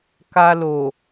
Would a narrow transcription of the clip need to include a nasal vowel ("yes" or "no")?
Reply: no